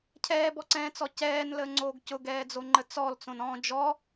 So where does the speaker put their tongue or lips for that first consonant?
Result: palate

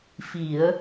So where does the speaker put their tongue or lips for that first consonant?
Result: lips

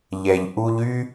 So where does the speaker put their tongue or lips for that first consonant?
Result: palate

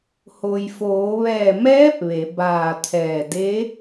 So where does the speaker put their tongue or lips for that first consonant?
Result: throat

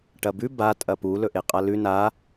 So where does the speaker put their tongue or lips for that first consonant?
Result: retroflex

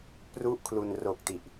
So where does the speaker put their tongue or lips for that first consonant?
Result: lips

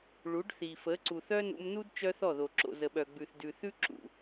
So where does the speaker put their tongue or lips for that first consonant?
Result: retroflex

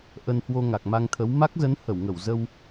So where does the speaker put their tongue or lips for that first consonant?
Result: throat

